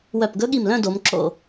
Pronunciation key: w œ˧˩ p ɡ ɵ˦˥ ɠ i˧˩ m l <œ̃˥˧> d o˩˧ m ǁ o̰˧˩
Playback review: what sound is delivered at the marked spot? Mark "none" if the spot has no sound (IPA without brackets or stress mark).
œ̃˥˧